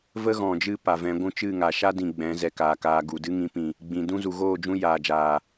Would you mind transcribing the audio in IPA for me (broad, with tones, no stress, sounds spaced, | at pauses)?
v ə˦ ɣ ɔ̃˨ d͡ʒ ɨ˦˨ p a˨ v ɛ̃˨˦ ɡʷ ũ˧ t͡ʃ ɨ˦˨ ŋ a˨ ʃ a˦ d ĩ˨ ɡ͡b ɛ̃˨˦ z ɛ˧ k aː˨ k aː˧ ɡ u˨ d ɨ˦ ŋ ĩ˨˦ p ĩ˨ | ɡ͡b ĩ˨ d ũ˦ z u˨ ɣ oː˦˨ d͡ʒ ũ˧ j aː˨ d͡ʒ aː˨